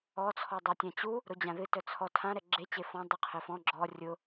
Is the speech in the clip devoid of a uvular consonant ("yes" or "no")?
no